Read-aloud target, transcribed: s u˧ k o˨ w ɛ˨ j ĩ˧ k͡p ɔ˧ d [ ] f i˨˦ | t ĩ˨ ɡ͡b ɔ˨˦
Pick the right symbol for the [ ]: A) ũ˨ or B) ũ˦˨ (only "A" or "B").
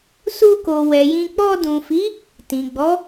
A